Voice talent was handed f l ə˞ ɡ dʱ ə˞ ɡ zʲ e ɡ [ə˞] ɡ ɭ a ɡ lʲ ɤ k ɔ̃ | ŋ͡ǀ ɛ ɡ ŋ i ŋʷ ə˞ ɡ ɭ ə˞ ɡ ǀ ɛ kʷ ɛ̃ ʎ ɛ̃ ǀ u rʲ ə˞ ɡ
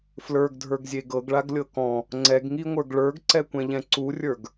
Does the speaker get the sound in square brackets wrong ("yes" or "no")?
yes